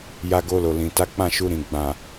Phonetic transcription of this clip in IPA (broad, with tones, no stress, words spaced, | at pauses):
ja˧ɡo˧lo˨lĩ˨ ta˨˦k͡pã˦˨ʃu˧ ɾĩ˨ ɡ͡bã˨